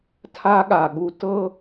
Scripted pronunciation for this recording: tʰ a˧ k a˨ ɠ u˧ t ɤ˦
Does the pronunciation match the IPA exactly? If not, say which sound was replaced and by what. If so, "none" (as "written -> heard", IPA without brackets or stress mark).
k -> ɠ